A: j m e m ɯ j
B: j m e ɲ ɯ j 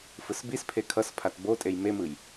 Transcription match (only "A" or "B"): A